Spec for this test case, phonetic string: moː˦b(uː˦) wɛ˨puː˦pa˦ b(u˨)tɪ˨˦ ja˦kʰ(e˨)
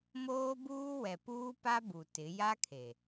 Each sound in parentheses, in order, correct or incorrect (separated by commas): correct, correct, correct